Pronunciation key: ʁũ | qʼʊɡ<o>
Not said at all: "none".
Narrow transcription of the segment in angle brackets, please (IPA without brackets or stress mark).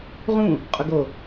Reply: o